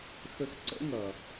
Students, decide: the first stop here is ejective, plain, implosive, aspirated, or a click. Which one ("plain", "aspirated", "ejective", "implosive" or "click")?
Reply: click